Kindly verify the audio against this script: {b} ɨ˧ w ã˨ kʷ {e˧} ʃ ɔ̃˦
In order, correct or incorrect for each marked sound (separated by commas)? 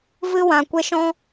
incorrect, correct